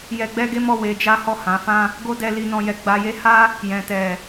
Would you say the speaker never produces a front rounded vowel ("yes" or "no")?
yes